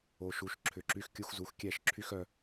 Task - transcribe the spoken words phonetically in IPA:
o˨ ʃ u˨ ʃ ǁʰ ʏ˨ ǁ y˧ x kʲ u˧ x z u˨ x kʲ ɛ˦˨ ʃ ǁʰ y˦ x œ˧

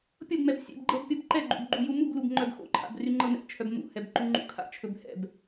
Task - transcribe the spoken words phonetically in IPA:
pʲ ɤ b m ɛ b sʲ ɛ̰ b ɡ͡ǃ ɤ b pʲ ɤ b ǃ ɛ ɡ͡ǃ ṵ b ɡ͡ǃ u j u m u b l u b ŋ͡ǃ œ b x o̰ ǃʰ a̰ b r y ŋ͡ǃ ɤ n ɛ̰ t͡ʃʰ œ b m ṵ h ɛ b ǃ u ŋ͡ǃ ṵ kʰ a̰ t͡ʃʰ ɵ b h ɛ̰ b

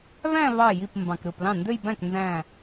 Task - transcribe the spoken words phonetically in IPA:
β æ̃˥˧ β ɑ˧˩ j i˧˩ p m b ɑ̃˩ k ɾ ɯ˧˩ p l ɑ̃˥˩ n d ø˥˧ j b æ̃˥˩ k n z æ̃˧˩

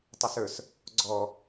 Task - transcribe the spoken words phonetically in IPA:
tˤ ʊ s ə˞ s | ɡ͡ǀ ɔ

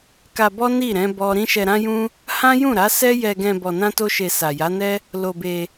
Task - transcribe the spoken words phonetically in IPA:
k a˧ b ɔ˦ n i˦˨ ɾ ɛ̃˨˦ b ɔ˦ ɾ ĩ˦ ʃ ɛ˧ ɾ ã˦ j ũ˦ | h ã˦ j ũ˦˨ ɾ a˨˦ s ɛ˦ j ɛ˧ ɡ ɛ̃˧ b ɔ˧ n ã˦ t o˦ ʃ e˧ s a˨ j a˨˦ n ɛ˦ | l o˧ b e˧

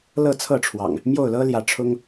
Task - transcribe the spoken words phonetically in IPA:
l ɤ˥˨ t͡sʰ ɤ˥˨ ʈ͡ʂʰ w ɑ̰˨˩ ŋ | m j o˥˨ ʊ̯ l ɤ˦ l j ä˨˦ ʈ͡ʂʰ ʊ˦ ŋ

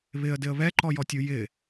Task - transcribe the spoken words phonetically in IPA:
β ɪ ə̯ d ɪ ə̯ β ɛ ǃ ɔ j ɔ tʲ u j ɪ

